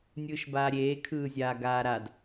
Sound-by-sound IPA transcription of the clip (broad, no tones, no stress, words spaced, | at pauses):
nʲɯːʃbaːɾʲeː kʰɯːzʲaːɡaːɾad